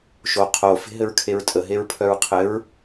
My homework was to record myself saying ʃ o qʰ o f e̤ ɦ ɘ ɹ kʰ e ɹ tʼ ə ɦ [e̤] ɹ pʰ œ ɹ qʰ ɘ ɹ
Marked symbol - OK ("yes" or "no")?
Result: no